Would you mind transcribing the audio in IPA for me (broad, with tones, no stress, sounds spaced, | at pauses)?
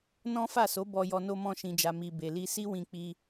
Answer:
n ɔ̃˦ f a˦˨ s o˨˦ b ɔ˧ j ɔ˧ n o˧ m ɔ̃˧ ʃ ĩ˨ d͡ʒ a˨ m i˨ b e˨ l i˧ s i˦ w ĩ˧ k͡p i˧